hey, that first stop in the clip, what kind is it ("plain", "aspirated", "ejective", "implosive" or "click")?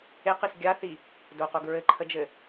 plain